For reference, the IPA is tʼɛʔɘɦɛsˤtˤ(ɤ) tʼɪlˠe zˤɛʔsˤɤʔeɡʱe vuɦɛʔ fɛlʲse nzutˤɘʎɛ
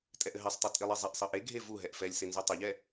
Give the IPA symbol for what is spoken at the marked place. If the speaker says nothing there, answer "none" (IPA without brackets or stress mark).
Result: ɤ